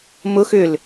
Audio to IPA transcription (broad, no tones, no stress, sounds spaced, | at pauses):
m ʊ x ʏ l